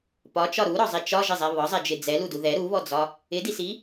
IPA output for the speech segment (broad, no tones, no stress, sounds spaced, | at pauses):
p ɒ t͡ʃ ɒ ɾ u ɾ ɔ zˤ i t͡ʃ ɒ ʒ ɪ zˤ ɛ β ɒ zˤ ɛ d͡ʒ ɪ d͡z ɛ l u d u ð ɛ ɾ u β ɔ d͡z ɒ | ɪ d i s i